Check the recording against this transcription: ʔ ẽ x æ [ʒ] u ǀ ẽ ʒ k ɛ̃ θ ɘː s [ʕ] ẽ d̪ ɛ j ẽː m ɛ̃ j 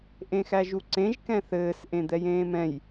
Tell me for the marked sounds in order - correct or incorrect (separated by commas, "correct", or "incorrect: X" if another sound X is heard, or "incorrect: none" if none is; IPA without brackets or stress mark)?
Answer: correct, incorrect: ʔ